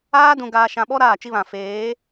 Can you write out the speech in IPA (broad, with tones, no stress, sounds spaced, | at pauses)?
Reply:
aː˦ d ũ˨ ɡ aː˨ ʃ ã˨ ɓ ɔ˦ ɾ aː˦˨ t͡ʃ i˦ β ã˨ f eː˨˦